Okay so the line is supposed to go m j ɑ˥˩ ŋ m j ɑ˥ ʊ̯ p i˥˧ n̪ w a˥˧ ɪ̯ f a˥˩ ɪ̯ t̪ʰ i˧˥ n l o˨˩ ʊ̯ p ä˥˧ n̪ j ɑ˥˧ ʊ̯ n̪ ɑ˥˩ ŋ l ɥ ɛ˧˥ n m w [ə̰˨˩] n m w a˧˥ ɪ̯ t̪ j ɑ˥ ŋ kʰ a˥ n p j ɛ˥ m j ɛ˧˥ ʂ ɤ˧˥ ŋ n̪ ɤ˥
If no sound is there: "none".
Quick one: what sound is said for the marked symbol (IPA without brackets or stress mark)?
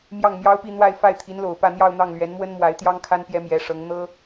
ə˥